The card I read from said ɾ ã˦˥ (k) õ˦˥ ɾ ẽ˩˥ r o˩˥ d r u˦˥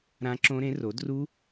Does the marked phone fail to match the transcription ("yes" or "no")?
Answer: yes